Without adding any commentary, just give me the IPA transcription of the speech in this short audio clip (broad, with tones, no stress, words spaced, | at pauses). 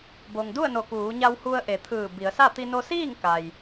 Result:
bo˩ŋdu˥˨ə̯no˧˩ kuː˩˧ɲa˧whu˧ə̯ ʔe˩˧t̪ʰɯː˧˩ bi˩˧ə̯sa˥˨ t̪i˧no˧siː˥˨ŋ ka˩j